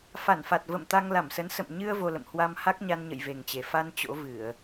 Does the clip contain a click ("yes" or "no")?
no